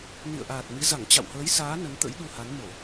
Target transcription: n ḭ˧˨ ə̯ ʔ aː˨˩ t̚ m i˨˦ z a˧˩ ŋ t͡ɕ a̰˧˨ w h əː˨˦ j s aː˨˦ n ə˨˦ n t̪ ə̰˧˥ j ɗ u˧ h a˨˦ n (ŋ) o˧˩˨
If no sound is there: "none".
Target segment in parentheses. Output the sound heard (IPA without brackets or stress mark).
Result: m